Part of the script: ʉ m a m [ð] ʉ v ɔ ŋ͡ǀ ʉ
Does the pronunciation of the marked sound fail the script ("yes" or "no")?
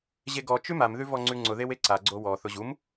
no